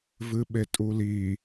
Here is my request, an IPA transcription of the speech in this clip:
v ɨ ɓ e tʼ u l i

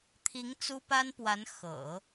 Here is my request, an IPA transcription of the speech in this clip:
t̪ʰ i˧˥ ŋ t͡s u˥ p a˥ n p w a˧˥ n x ɤ̰˨˩˦

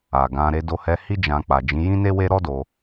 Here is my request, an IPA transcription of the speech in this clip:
a˨ ɡ ã˧ ɾ e˧ d o˧ h ɛ˧ h i˦ d͡ʒ ã˧ k͡p a˨ d͡ʒ ĩ˨˦ j ĩ˦ n e˦ w e˦ ɾ ɔ˦ d o˧

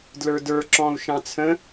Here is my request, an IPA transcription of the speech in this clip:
d l ə˞ d ə˞ ǁ ɔ̃ u̯ ʃ ɑ̃ t͡sʰ ə̃

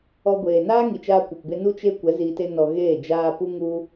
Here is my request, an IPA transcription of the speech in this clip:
ɔ˧ ɡʷ eː˨ n aː˦ ŋ i˨ t͡ʃ aː˧ kʷ ɛ˨ p b e˧ n u˦ t͡ʃ e˦ kʷ ɛ˨˦ z iː˧ t e˦ n ɔ˧ ɣ eː˦˨ d͡ʒ aː˧ p u˦ ŋ u˦

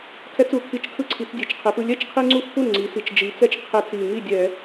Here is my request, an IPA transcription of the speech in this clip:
kʰ ɛ˦ t͡s u˩˧ kʰ i˧˩˧ t͡ʃ kʰ ɯ˦ ǀʰ i˩˧ t͡s dʲ e˩˧ t͡ʃ qʰ e˩˧ p ɯ˥˩ lʲ ɛ˥˩ t͡ʃ qʰ i˦ ŋ͡ǀ u˦ x p u˥˩ n ŋ͡ǀ i˩˧ s i˨˩ t͡ʃ d͡ʒ i˩˧ t͡s ɛ˦ t͡ʃ qʰ e˧˩˧ t͡s i˨˩ ŋ i˥˩ dʲ ɛ˧˩˧

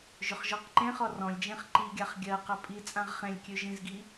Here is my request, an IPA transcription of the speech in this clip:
ʒ ɵ χ ʒ ɔ q ǃ ẽ χ ɔ r ɔ̃ lʲ d͡ʒ ẽ χ ǃ i ɡʲ a χ ɡʲ ɜ q ɜ pʼ i t͡sʼ ã ʁ χ ẽ lʲ kʲ ø ʒ ĩ z ɡ i

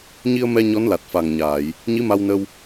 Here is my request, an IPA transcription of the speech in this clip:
ɲ i˧ ə̯ m ɛ˧ ɲ ɔ˧˥ n l a˨˩ t̚ f a˨˩ ŋ ɲ aː˨˩˨ j | ɲ i˧˥ m a˧ w n ə˧ w

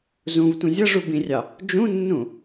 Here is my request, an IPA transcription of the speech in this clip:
z ũ v tʷ ĩ zʲ ʌ ʐ u b ĩ rʲ ɑ | d͡ʒ ũ nː ũ

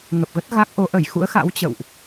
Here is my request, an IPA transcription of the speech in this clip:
ŋ ə˨˩ p̚ ɣ ə˦˥ t̚ ɣ a˦˥ k̚ ʔ o˨˦ ʔ ə˧˩ j x ṵ˧˥ ə̯ x a̰˧˥ w t͡ɕ ə̰˧˨ w ʔ

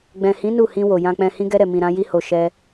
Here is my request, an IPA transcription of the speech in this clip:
ɡ͡b ɛ̃˨ h ĩ˨˦ n u˦˨ h ĩ˧ w o˨ j ã˧ k͡p ɛ̃˧ h ĩ˧ ɡ ɛ˧ ɾ ɛ˨ m ĩ˨ ɾ ã˧ j i˧ h o˨ ʃ ɛ˧

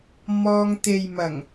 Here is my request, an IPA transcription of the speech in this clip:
m ɔː˧ ŋ t̪ e˨ j m ɐ˨˩ ŋ

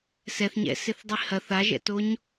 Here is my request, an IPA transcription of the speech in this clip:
s ɛ θ ɲ ɛ̰ s ɪ θ dˤ i h ɐ θ a ʒ ɛ̰ t o ɲ

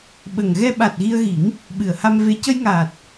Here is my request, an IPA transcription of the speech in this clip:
ɓ ə˨˩ ŋ ɣ ɛ˧ ɓ a˨˩ t̚ ɣ i˧ ə̯ ɣ i˨˩˦ ŋ | ɓ ɨ˨˩˨ ə̯ h a˧ m v e˧˥ c ə˧ j ŋ aː˨˩ t̚

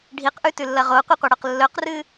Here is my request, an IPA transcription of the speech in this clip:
ɖʱ i q ʔ ʉ t ʉ lː ɐ ʁ o qʷ ɨ qʷ ɐ ɽ ɵ q lː ɵ q r ɨ

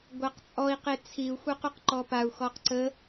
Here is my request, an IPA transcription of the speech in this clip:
ɡʷ a q t͡sʼ ɔ i̯ q e t͡sʰ i u̯ xʷ œ q u q ǃ ɔ p a u̯ x ɔ q ǀ ə

